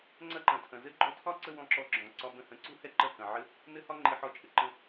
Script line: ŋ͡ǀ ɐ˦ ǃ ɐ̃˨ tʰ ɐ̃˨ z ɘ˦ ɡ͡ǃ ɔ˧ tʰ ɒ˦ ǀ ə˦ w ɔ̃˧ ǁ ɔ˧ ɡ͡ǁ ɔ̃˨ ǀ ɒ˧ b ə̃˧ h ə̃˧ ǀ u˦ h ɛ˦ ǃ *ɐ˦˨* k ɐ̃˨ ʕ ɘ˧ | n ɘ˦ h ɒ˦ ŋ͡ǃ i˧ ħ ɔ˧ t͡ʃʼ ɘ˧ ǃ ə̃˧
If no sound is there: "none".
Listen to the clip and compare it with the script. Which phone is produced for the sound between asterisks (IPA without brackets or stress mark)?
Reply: ɐ˦˨